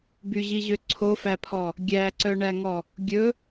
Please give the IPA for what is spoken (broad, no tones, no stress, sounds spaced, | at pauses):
b y ʑ i ʑ ø ǀʰ o f æ pʰ ɔ | ɡʲ æ ǀ œ ɳ æ ŋ ɔ | ɡʲ ɵ